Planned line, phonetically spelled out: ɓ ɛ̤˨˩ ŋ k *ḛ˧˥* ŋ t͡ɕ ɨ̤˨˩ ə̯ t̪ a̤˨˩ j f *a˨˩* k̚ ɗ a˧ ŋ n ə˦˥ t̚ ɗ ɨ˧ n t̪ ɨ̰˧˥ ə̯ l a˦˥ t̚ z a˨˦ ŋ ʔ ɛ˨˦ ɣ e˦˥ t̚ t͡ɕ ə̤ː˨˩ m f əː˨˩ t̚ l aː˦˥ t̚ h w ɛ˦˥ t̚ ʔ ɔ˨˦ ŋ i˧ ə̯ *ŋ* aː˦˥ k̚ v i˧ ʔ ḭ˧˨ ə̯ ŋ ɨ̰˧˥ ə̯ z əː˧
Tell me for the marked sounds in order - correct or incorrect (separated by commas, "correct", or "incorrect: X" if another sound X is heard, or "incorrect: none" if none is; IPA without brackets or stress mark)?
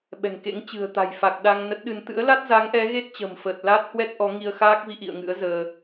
correct, correct, incorrect: x